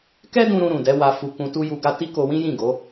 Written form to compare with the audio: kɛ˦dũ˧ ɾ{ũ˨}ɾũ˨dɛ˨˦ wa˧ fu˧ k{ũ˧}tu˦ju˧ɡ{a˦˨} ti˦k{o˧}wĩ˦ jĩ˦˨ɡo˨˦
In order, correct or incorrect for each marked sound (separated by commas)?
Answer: incorrect, correct, incorrect, correct